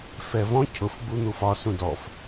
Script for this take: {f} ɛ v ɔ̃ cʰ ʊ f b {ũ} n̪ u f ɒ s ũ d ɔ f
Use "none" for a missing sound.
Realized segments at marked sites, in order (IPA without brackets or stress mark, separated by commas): f, u